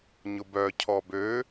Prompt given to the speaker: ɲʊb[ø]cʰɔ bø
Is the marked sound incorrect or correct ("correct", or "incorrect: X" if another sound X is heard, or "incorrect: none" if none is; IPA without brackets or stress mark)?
incorrect: œ